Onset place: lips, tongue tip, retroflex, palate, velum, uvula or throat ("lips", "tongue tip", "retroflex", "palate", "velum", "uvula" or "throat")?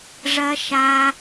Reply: retroflex